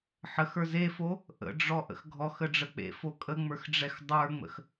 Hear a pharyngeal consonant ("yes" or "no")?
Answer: yes